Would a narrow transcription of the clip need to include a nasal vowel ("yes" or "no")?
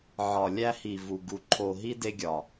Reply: no